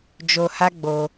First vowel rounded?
yes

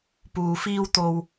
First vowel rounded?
yes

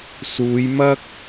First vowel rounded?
yes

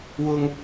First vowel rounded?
yes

